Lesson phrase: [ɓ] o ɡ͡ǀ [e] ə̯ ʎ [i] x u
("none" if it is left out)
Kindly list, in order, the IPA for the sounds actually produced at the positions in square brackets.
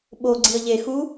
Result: ɓ, i, e

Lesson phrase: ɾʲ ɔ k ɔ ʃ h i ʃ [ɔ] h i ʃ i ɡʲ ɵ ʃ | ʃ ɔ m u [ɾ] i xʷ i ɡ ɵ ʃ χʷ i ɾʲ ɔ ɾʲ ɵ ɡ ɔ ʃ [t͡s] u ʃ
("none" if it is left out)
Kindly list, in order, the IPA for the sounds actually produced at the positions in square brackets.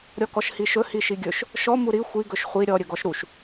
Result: ɵ, ɾ, ɾ

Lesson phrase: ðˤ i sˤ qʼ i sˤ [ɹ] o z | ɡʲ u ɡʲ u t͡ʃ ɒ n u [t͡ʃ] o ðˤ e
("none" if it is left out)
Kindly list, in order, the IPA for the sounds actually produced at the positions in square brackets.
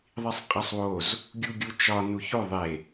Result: w, ç

